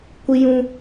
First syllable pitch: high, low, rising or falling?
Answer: high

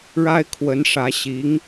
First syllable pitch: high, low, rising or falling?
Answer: high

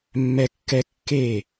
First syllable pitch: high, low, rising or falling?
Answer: high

